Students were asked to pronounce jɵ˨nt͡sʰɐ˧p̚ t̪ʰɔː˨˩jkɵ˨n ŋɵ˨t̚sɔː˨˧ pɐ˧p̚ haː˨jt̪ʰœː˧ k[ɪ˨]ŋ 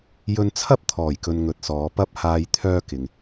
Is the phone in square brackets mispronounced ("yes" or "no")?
no